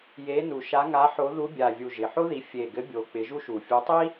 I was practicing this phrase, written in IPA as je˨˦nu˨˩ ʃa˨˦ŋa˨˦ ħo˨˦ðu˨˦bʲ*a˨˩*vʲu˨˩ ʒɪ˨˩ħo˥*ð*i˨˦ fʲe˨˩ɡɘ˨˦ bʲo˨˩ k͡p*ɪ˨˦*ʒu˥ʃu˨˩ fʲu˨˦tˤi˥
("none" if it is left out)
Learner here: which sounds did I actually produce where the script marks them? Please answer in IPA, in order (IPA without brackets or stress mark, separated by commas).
a˨˩, ð, ɪ˨˦